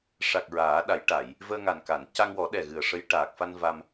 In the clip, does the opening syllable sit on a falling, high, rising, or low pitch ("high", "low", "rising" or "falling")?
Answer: low